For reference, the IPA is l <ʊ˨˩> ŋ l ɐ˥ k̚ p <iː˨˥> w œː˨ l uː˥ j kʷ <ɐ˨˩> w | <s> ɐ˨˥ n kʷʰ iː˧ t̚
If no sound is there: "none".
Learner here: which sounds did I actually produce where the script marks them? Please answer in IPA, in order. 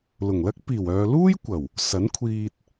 ʊ˨˩, iː˨˩, ɐ˨˩, s

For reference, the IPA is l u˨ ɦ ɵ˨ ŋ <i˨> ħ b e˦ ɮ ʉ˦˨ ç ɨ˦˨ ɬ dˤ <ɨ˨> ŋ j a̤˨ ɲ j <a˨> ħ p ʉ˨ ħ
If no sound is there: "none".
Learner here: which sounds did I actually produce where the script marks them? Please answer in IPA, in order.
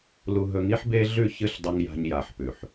i˦, ɨ˨, a˨

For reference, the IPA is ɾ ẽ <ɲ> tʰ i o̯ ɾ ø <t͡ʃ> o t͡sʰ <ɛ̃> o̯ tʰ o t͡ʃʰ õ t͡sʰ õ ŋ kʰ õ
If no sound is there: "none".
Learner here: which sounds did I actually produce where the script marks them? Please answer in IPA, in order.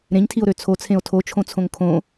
ɲ, t͡sʰ, ẽ

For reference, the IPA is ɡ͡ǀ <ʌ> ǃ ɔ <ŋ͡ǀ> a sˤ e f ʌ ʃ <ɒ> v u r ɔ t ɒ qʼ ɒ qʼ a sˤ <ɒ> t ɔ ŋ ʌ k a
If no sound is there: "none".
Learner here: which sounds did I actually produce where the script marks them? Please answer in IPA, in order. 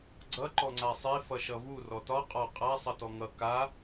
ʌ, ŋ͡ǀ, ʌ, ʌ

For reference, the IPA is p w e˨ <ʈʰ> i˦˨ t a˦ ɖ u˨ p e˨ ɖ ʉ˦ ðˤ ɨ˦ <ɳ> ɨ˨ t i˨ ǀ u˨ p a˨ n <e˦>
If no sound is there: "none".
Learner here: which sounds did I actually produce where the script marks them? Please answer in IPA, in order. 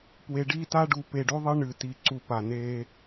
ɖ, ɳ, e˦

